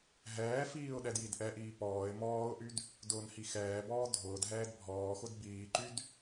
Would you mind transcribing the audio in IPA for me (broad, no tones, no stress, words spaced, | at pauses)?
ɦɛːfiːʊ̯ ɗɛdjidʔɛʔiː pɔːɪ̯ mɔːʊ̯ʔyd | dʊːnhixɛːbɔː dʱʊːdɦɛːd bʱɔːxʊd biːǃyd